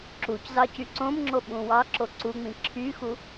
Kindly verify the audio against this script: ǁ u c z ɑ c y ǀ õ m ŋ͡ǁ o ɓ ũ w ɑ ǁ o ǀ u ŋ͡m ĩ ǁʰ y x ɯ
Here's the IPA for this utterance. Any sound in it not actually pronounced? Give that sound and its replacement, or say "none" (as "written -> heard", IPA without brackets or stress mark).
ɯ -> u